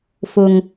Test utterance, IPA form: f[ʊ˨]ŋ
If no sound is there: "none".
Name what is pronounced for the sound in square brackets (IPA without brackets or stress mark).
ʊ˨